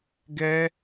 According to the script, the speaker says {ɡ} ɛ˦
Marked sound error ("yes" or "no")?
no